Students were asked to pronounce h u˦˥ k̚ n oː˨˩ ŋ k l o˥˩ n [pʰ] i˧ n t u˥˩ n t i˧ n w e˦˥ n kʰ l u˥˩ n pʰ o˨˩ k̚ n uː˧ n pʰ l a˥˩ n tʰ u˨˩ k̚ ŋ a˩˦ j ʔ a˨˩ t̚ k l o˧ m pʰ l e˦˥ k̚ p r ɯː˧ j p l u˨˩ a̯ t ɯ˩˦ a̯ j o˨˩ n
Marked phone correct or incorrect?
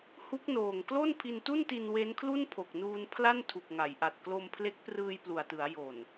correct